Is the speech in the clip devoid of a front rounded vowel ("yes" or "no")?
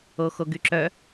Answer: no